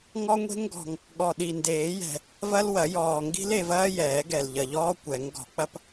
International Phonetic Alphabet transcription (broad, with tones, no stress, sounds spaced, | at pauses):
ŋ ɔ˦ ŋʷ e̤˦ ŋ ɡ ɔ̤˨˩ ŋ | ɠ ɔ˨˩ ɗ i˨˩ n d eː˨˩˦ j ɛ̤˨˩ | v ɐ˦ l w ɐ˨˩˦ j ɔː˨˩ ŋ ɡ i̤˦ l e˥˨ v ɐː˦ j ɛː˨˩˦ ɡ ɛ˨˩ l ʎ ɐ˨˩ ʎ ɔː˦ kʷ ɛ˨˩˦ ŋ ɡ ɔ̤˨˩˦ k͡p ɐ˦ p